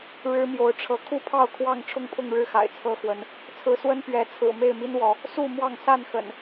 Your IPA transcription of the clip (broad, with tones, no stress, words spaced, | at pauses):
ɻɻ̩˦mjo˨˦ʊ̯ʈ͡ʂʰɤ˨˦ kʰu˥˨pʰɑ˥˨ʊ̯ kʰwɑ˥˨ŋ ʈ͡ʂʰʊ˥˨ŋpʰʊ˥˨ŋɻɻ̩˥˨xa̰˨˩ɪ̯ t͡sʰɤ˦xwə˨˦n | t͡sʰɹ̩˨˦swə˦n pɥɛ˨˦t͡sʰɹ̩˨˩ me˥˨ɪ̯mi˦nwɔ˨˦ | su˥˨ mwɑ˥˨ŋ sa˥˨nxə̰˨˩n